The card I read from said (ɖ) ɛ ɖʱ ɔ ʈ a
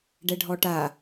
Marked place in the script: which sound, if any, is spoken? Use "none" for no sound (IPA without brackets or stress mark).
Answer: ɖ